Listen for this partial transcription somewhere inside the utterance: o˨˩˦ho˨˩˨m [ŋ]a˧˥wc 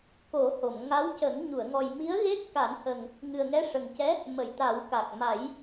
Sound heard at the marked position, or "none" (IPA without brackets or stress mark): ŋ